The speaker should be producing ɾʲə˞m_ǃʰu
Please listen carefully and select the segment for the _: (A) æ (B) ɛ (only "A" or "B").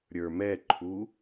B